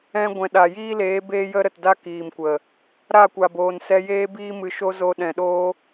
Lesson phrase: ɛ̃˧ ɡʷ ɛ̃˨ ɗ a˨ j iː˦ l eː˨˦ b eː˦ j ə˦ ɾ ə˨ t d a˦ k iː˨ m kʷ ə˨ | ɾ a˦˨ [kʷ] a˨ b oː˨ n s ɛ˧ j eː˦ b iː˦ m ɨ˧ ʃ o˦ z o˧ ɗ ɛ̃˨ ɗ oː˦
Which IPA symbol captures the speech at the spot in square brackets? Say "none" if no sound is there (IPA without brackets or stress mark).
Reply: kʷ